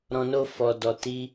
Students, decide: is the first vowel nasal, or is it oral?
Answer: nasal